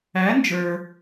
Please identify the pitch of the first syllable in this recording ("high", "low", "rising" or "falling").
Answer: rising